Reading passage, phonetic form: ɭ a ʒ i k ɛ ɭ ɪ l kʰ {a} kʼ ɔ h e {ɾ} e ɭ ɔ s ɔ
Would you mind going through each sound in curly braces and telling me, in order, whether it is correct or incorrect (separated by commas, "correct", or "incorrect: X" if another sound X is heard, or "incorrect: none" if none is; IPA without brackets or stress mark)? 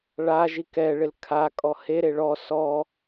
correct, correct